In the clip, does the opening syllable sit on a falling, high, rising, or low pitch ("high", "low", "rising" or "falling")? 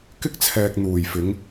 high